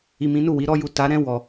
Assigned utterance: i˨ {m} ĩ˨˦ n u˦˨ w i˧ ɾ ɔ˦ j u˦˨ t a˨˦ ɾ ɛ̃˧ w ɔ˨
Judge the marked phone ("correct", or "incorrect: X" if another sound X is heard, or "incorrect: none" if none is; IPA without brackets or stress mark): correct